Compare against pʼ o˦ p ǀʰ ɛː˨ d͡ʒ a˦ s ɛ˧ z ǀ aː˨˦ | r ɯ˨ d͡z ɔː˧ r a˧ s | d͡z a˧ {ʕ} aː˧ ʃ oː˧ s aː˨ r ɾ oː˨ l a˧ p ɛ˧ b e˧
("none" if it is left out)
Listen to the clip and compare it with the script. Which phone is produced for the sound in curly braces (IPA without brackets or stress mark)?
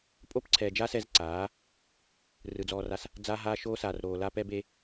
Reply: ɦ